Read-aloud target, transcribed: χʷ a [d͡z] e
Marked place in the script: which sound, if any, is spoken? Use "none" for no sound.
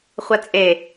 t͡sʼ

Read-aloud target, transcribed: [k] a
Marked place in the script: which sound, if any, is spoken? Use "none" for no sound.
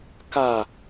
k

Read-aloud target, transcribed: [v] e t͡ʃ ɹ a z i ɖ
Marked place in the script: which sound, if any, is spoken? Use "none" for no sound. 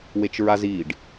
w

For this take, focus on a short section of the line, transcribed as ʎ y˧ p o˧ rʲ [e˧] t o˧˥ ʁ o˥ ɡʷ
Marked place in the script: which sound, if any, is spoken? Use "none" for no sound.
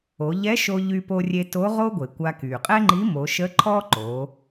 e˧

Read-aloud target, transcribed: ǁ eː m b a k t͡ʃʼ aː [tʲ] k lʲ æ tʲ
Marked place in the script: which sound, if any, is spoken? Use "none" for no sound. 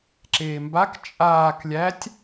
none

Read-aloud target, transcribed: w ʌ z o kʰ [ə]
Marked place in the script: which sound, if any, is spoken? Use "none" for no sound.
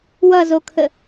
ə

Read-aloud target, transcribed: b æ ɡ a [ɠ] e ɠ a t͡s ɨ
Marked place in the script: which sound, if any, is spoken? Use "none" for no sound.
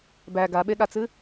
ɓ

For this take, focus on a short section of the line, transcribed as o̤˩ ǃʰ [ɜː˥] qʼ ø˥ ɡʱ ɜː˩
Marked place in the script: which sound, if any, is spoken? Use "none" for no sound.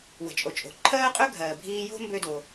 ɜː˥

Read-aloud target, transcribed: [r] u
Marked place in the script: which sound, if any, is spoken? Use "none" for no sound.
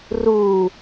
r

